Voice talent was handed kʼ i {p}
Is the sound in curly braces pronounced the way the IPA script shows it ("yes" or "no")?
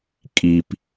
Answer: yes